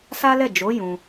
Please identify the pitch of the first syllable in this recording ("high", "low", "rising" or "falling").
high